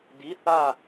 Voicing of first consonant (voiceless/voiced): voiced